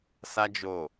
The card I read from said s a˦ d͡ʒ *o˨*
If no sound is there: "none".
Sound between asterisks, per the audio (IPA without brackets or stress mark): o˦˨